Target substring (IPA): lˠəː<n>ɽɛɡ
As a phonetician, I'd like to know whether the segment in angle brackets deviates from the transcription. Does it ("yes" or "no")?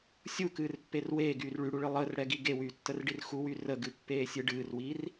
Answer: yes